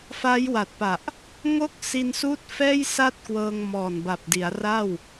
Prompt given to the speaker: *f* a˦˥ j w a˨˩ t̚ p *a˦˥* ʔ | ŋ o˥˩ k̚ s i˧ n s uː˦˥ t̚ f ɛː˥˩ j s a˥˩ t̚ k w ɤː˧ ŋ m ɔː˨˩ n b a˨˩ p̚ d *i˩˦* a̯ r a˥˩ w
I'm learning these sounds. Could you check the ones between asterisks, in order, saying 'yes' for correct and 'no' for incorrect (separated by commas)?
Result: yes, no, yes